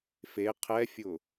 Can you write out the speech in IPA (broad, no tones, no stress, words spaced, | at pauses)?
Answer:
fe qʰɛfʲʊ